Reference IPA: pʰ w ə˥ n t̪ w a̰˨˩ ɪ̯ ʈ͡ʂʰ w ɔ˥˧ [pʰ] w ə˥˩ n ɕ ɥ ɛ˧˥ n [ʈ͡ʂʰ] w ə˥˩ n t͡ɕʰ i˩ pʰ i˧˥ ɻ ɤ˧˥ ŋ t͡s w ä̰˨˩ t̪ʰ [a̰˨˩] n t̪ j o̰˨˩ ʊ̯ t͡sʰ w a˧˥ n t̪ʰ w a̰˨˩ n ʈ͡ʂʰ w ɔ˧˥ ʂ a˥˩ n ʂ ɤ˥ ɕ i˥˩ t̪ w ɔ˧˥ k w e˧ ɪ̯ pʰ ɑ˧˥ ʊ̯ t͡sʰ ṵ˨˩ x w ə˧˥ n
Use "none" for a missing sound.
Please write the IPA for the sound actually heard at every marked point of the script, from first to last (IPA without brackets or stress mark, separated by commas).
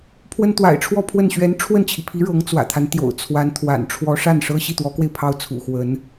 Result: pʰ, ʈ͡ʂʰ, a˦